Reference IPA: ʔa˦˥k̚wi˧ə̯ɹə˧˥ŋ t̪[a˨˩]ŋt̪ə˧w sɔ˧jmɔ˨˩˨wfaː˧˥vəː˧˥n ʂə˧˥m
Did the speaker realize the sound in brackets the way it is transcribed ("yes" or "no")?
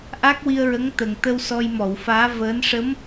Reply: no